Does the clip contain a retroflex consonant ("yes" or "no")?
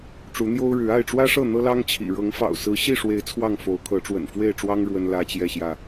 yes